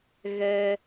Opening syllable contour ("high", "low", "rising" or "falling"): high